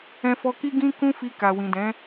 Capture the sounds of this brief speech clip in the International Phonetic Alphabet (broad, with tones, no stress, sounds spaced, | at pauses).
ɛ̃˧ f ɔ˧ k i˦ ɡ ĩ˦ k ũ˦ f i˧ k a˨ w ĩ˨ d ɛ̃˨˦